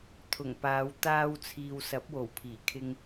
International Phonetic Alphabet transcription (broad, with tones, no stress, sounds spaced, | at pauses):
t̪ʰ ʊ˨˩ ŋ p aː˨˧ w t̪ aː˧ w t͡sʰ iː˨ w s ɐ˨˥ p̚ w o˨˩ w pʰ iː˨˩ kʰ ɪ˧ ŋ